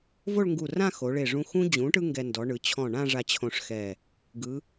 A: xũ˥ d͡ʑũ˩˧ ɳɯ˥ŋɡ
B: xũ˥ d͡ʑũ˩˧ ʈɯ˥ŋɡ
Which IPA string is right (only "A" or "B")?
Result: B